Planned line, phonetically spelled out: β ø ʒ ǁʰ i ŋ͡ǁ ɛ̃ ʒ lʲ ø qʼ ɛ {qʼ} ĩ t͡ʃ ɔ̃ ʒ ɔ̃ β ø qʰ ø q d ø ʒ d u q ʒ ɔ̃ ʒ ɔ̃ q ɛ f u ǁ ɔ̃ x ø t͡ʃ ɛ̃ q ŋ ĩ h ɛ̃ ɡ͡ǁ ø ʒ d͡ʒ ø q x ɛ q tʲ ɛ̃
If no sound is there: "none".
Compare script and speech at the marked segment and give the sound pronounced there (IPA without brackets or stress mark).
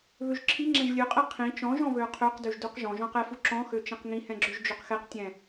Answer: qʰ